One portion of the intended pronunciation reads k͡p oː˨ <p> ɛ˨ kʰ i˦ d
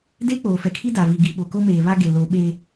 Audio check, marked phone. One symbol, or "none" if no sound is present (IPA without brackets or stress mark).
f